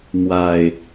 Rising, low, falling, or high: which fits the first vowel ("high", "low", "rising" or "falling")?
low